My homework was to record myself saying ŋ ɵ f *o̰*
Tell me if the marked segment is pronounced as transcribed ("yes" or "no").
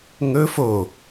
no